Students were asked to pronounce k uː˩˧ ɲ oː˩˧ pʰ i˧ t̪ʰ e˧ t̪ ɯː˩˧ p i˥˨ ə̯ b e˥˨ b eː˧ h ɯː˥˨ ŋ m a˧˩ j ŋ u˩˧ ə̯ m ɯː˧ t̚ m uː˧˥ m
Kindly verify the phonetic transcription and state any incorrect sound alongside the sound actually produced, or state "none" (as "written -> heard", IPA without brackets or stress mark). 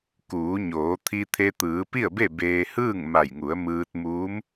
pʰ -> t̪ʰ